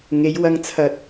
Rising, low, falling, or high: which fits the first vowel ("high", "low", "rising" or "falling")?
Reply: rising